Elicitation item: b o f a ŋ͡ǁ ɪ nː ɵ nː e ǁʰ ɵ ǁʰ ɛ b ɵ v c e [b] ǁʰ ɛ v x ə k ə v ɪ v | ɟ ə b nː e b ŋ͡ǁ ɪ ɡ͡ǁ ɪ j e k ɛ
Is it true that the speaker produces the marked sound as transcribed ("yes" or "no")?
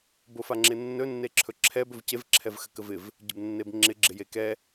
no